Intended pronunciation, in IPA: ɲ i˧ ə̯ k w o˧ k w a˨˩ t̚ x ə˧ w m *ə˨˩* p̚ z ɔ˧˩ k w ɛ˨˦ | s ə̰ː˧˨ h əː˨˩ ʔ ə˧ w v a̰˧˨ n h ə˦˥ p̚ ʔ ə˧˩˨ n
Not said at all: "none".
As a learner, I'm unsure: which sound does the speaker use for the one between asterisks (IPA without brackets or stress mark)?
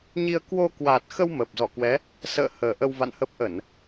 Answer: ə˨˩